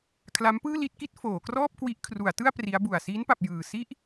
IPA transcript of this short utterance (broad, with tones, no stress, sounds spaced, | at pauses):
kʰ l a˦˥ m p ɯː˥˩ l i˥˩ t̚ k i˥˩ t̚ f oː˩˦ k r ɔː˥˩ p̚ k w i˦˥ ʔ kʰ r u˩˦ a̯ t ɯ˥˩ a̯ p r i˦˥ a̯ b u˨˩ a̯ s iː˦˥ n p a˨˩ p̚ j ɯː˨˩ s i˥˩ ʔ